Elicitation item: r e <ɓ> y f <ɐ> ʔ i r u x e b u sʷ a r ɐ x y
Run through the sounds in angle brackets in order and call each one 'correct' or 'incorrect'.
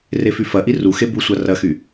incorrect: f, correct

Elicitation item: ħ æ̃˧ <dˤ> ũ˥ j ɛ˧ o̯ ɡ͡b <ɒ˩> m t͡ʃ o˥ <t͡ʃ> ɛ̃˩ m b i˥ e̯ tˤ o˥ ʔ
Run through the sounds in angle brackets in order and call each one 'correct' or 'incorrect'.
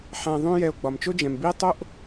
incorrect: ðˤ, correct, incorrect: d͡ʒ

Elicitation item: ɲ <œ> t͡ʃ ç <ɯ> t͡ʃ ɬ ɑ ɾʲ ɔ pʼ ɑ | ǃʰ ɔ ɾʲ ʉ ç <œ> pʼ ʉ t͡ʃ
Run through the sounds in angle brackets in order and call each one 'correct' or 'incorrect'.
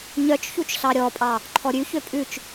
correct, incorrect: u, incorrect: ø

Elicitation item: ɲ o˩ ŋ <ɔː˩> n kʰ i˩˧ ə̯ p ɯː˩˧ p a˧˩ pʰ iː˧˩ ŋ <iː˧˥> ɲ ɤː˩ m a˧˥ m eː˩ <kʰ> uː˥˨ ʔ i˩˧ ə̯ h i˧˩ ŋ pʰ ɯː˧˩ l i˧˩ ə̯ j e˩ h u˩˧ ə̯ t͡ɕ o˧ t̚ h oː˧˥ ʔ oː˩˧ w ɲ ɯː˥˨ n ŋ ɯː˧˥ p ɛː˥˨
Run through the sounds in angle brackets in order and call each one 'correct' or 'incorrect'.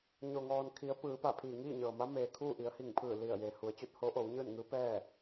correct, incorrect: iː˥˨, correct

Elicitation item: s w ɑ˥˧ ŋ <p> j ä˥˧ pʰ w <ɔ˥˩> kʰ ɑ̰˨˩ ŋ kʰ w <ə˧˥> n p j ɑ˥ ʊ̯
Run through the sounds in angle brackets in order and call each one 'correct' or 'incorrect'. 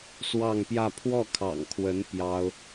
correct, correct, correct

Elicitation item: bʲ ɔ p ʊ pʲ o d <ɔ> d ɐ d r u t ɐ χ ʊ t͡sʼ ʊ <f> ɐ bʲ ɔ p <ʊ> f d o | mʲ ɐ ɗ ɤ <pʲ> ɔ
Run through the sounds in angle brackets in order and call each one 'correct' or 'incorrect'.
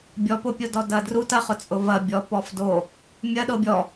correct, incorrect: v, incorrect: ɔ, incorrect: bʲ

